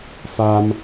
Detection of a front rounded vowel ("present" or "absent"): absent